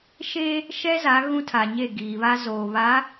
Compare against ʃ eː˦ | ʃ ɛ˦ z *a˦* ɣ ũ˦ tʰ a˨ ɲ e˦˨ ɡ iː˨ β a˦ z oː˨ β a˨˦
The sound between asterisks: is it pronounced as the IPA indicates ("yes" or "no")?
no